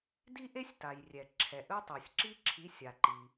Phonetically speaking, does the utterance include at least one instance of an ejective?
no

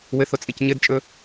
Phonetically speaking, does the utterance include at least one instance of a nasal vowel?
no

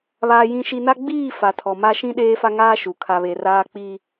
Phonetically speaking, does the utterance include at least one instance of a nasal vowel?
yes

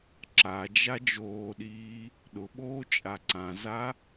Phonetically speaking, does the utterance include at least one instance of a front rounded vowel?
no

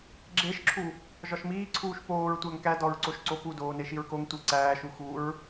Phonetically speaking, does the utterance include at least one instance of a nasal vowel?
no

